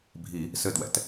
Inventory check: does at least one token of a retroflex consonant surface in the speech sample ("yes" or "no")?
no